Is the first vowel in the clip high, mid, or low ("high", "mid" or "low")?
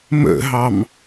mid